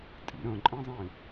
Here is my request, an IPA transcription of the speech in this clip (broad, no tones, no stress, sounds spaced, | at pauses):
tʼ ḭ ɾ ə̃ ǃʼ ĩ zˤ ĩ